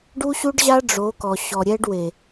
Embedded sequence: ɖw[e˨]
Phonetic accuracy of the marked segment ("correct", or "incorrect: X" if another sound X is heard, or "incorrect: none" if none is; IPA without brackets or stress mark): correct